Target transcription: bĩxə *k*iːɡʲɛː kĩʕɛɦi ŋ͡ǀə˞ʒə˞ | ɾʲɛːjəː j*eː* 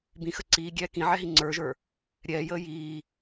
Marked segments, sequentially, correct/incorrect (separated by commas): incorrect, incorrect